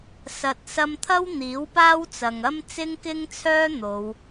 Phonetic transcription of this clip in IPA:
s ɐ˨ t̚ s ɐ˧ m t̪ʰ ɐ˥ w n̪ iː˨˥ w p aː˥ w t͡s ɐ˨ ŋ ɐ˥ m t͡s ɪ˥ ŋ k ɪ˥ ŋ t͡sʰ œː˥ n̪ o˨˧ w

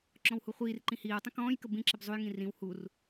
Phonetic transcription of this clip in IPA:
ǁ ɔ̃ w h u χʷ iː r ǃ ĩ h iː w tˤ ə̃ k ɔ̃ː j k ə b ĩ ǁ ɪ b zˤ u j ŋ ĩ r ĩ w h u r

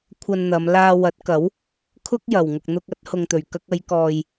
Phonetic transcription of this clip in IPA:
kʷʰ ɐ˧ n n̪ ɐ˨˧ m l aː˧ w ɐ˨˥ t̚ k ɐ˨˥ w | kʰ ʊ˥ k̚ j ɐ˨ w ŋ ʊ˧ k̚ n̪ ʊ˧ k̚ ɐ˨˥ t̚ h ʊ˨ ŋ t̪ ɵ˨˩ ɥ k ɐ˧ k̚ ɐ˨˧ j k ɔː˨ j

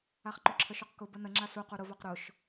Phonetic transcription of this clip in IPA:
a χ ǃ ʊ ǁʰ ə ʃ u q k ʊ b ə n ə ŋ͡ǁ a s u q u ɾ ʊ v a q ɾ ʊ ʃ

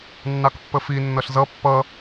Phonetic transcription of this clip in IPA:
nː ɑ k pː ə f i nː ʌ ɬ z ʌ pː ʌ

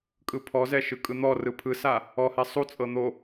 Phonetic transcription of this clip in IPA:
kʼ ɯ pʰ ɔ z ɛ ʃ ɯ kʼ ɯ n̪ ɔ r ɯ pʰ ɯ s a | ɔ h ɛ sˤ u t͡sʼ ɤ n̪ o

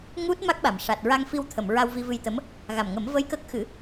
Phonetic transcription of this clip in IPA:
ŋ u˦˥ t̚ m a˦˥ k̚ ɓ a˨˩ m ʂ a˨˩ t̚ ɹ a˧ ŋ f i˧ w t̪ʰ ə˨˩˨ m ɹ a˧ w v i˧ v ɨ˧ j t̪ ə˧˥ m | ɣ a˨˩ m ŋ ə˨˩˦ m v ə˧ j k ə˦˥ k̚ x ɨ˨˩˦

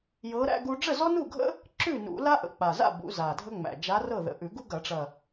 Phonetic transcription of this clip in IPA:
j ɤ˧˥ ɾ æ̰˥ ɡ u˥ ɖ͡ʐ ə˥˨ z ɔ˥ n u˥˨ ɡʱ ə̰˥ | ǁ ʉ˥˨ n ṵ˨˩˦ l a˥ ʔ ə̰˨˩ k͡p a˨˩ z a̰˥˨ b ṵ˨˩˦ z a˨˩ dʱ ə˥ ŋ͡m æ̰˨˩ d͡ʒ a˧˥ r ɤ˥˨ ð ə̰˨˩ ʔ ʉ˨˩˦ ɡ u˥ ɡ ɐ˨˩˦ ʈ͡ʂ ɐ˨˩

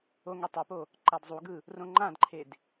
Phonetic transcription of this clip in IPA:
o ŋ e tˤ u p o | ǃ a d zˤ u ɡ ɯ | r õ ŋ͡ǃ ã d ǃʰ e d

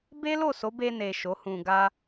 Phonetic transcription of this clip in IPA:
b e˦ l o˦˨ s o˨˦ b e˧ n e˨ ʃ o˨˦ h ũ˧ ɡ a˦

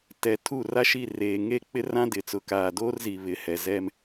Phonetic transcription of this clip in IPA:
t ɛ˨ tʰ u˦˨ r a˦ ʃ i˦˨ r eː˨ ŋ e˦˨ k͡p ɪ˦ r ã˦ d ɪ˨ t͡s ʊ˨ k aː˨ d oː˦ r z i˨ β ɪ˨˦ h ɛ˨ z ɛ˦ m

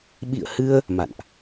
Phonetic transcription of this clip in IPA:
ɓ ḭ˧˨ ə̯ h ɨ˧ ə̯ | m a̰˧˨ n ʔ

